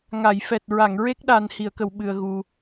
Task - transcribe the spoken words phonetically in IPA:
ŋ a˨˩˨ j f ɛ˨˩ t̚ ɹ a˨˩˨ ŋ ɹ e˦˥ k̚ ɗ a˨˩ n h i˨˩˨ ə̯ k ə˨˩˨ w ɓ ɨ˨˩ ə̯ ɣ u˨˩

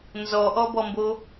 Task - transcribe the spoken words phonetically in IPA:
n z ɔ ʔ ɔ b ɔ m b o

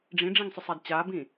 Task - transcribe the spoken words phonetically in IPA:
ɖ͡ʐ ĩ ɖ͡ʐ ĩ ŋ sˤ ʏ sˤ a d t͡ɕ a b ĩ

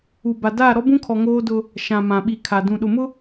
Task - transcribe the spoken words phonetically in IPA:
u˨ b a˨ d aː˦˨ ɾ ɔ˦ b ũ˦ kʰ ɔ˨ ŋ oː˦ d ʊ˦ | ʃ ã˨ m ã˨ ɓ i˨ kʰ a˨ d ũ˨ ɗ ʊ˨ m ʊ˦

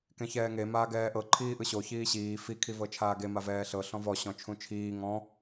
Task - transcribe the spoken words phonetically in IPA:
k ẽ ç ɛː ŋ e m aː ɡ ɛː ʔ ɤ ǃʰ iː ʔ ɯ ɕ o ç iː ɕ iː f i kʰ i v ɤ t͡ʃʰ aː ɡ e m a v ɛː ɬ ɤ ɬ ɔ̃ v ɔ ɕ ɔ̃ t͡ʃʰ ũ t͡ʃʰ iː ŋ ɔ̃

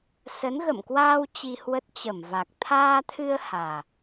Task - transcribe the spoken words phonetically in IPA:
s ə˨˦ n ɣ ə̰˧˨ m k w aː˧ w t͡ɕ i˧ h w ə˦˥ t̚ t͡ɕ ə˧˩ m v a˨˩ k̚ t̪ʰ aː˧ t̪ʰ ɨ˧ ə̯ h aː˨˩

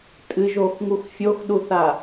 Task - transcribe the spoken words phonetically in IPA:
tʼ ɨ ʒ o x ŋ u x fʲ o x ɗ u θ a

